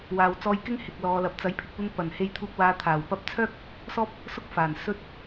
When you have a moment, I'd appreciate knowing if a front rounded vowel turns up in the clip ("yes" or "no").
yes